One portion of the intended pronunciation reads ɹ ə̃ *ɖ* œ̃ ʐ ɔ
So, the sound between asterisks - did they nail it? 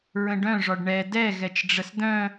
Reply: yes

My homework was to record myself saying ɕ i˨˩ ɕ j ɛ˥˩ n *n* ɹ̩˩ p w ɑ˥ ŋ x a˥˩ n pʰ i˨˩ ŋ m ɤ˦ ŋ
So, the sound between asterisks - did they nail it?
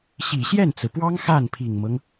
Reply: no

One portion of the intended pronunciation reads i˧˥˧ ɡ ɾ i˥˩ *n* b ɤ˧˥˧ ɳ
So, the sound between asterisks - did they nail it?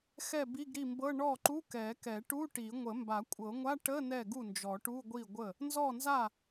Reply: no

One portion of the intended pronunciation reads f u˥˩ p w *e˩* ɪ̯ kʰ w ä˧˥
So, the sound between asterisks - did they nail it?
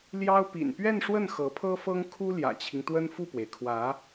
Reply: yes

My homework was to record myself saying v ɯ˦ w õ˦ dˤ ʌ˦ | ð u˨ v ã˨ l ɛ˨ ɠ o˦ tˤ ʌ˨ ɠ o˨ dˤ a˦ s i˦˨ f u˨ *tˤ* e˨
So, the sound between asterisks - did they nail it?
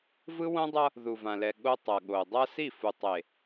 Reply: yes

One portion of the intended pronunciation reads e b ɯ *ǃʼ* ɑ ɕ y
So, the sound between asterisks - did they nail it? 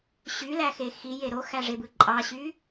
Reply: yes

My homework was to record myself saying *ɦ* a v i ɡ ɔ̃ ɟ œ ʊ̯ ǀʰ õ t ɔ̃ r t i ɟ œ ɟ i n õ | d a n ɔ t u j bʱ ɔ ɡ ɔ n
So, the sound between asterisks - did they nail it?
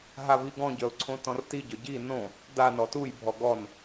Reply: yes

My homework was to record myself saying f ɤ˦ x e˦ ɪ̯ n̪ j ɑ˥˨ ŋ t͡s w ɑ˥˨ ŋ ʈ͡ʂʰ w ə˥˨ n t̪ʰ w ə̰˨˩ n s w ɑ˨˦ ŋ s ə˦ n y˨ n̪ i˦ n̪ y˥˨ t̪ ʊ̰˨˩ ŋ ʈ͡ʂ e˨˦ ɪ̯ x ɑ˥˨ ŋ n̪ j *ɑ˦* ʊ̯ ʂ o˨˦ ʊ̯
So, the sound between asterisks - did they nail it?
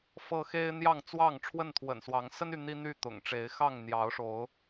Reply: no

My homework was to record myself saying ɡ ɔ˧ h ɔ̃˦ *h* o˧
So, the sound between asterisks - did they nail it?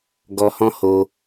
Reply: yes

